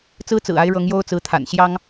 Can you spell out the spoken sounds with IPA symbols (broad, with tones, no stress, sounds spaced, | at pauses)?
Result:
t͡s ɹ̩˥ t͡s ɹ̩˨˩ a˧˥ ɪ̯ ɻ ɤ˧˥ ŋ j o˥ ʊ̯ t͡s ɹ̩˧˥ t̪ʰ a̰˨˩ n ɕ j ɑ˥ ŋ